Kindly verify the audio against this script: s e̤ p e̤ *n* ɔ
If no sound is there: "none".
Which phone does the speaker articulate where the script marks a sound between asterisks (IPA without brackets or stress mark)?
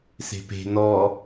n